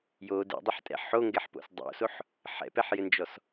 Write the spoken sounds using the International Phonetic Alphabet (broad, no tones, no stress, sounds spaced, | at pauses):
j o d ɛ̰ dˤ ɘ ħ tʼ ɛ̰ ħ o ŋ ɡ ɛ ħ p o̰ s dˤ o̰ s o ħ | ħ ɛ̰ p ɛ ħ j ɘ n d͡ʒ ɔ s